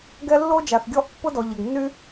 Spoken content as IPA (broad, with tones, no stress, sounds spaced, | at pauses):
ɡ ɛ˦ lː o˦ d͡ʒ a˩ θ ɡʲ ɔ˦ ʔ pː ʊ˦ d ɔ˩ ʎ ɐ˩ ɡ nː y˦